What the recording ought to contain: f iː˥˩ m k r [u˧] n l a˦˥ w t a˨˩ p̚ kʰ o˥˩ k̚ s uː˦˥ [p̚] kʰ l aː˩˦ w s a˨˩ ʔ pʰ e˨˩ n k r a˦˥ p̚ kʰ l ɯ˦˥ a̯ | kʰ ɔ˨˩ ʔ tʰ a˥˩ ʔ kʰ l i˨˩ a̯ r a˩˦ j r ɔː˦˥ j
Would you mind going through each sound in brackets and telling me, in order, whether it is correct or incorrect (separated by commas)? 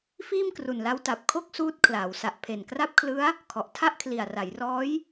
incorrect, incorrect